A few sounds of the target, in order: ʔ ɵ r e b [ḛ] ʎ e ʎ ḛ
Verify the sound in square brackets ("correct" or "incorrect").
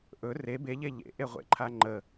incorrect